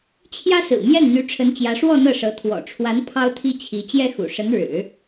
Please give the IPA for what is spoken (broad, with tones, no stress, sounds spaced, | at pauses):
t͡ɕʰ j ä˥ s ɹ̩˨˩ m j ɛ˥˩ n n̪ y˧˥ ʈ͡ʂʰ ə˧˥ n t͡ɕ j ä˧˥ ʂ w ɔ˥˧ n̪ ɤ˥˩ ʂ ɤ˧˥ t̪ʰ w ɔ̰˨˩ ʈ͡ʂʰ w a˧˥ n pʰ ɑ˥ ʊ̯ t̪ʰ i˥ t͡ɕʰ i˧˥ t͡ɕ j ɛ˥ x ṵ˨˩ ʂ ə˧˥ n ɻ ɻ̩˨˩˦